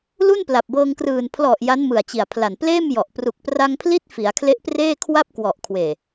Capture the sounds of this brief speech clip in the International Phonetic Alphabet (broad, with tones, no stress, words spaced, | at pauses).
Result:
lu˥˩npla˨˩p̚bɤː˧ŋkrɯː˨˩n pʰlɔ˨˩ʔ ja˦˥nmɯ˨˩a̯t͡ɕi˨˩a̯pʰla˨˩n pleː˥˩mjɔ˨˩ʔ pru˨˩k̚pra˧ŋpʰli˦˥t̚ fi˩˦a̯kʰle˦˥ʔpreː˥˩kʰwa˥˩p̚ kwɔ˨˩ʔkʰweː˨˩